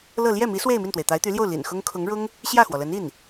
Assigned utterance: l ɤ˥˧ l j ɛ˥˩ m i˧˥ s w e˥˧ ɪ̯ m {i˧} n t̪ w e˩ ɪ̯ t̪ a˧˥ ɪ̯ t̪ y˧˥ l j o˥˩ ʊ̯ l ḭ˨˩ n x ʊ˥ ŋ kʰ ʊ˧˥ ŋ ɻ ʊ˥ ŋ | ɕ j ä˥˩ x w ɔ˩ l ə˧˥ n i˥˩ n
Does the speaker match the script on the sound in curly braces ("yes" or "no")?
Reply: no